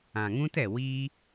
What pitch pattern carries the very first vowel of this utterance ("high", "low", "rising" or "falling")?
low